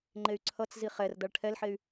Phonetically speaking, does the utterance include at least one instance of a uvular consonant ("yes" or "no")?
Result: yes